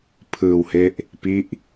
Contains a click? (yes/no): no